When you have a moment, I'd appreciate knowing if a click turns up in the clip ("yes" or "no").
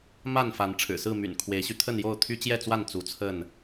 no